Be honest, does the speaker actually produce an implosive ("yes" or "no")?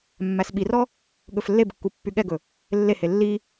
yes